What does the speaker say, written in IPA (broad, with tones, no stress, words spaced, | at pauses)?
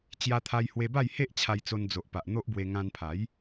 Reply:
t͡ɕja˧t̪ʰa˧jhwe˧ba˥˧j he˦ʔt͡ɕʰa˧jt͡so˧n d͡zo˨ʔpa˨ʔ n̪o˦ʔbwe˧ ŋã˧npʰa˨˦j